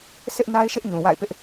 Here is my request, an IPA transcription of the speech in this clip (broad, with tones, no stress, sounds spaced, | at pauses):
sʰ ɪ˦ ʔ n a˦ ɪ̯ ʃ ɪ˦ ʔ ɲ ũ˨ w a̰˦˨ ɪ̯ p ɪ˦ ʔ